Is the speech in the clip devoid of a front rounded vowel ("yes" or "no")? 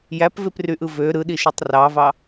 no